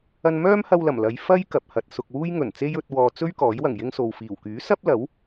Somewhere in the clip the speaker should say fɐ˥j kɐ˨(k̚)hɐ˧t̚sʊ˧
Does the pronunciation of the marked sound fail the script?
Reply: yes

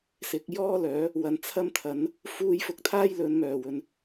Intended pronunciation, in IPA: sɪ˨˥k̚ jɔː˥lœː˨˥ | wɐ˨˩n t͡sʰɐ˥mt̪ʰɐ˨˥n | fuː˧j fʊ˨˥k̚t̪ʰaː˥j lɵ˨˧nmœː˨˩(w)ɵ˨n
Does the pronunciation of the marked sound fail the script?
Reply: no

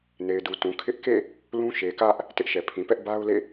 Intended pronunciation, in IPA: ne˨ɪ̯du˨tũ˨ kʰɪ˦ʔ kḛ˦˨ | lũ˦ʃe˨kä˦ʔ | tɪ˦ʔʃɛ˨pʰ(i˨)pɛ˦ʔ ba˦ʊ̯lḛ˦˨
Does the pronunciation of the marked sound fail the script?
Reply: yes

